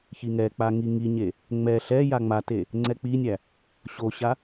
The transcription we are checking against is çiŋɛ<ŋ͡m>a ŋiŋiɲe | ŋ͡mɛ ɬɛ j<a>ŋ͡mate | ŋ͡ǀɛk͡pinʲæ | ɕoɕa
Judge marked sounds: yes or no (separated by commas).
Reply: no, yes